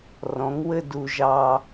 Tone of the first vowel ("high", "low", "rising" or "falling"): rising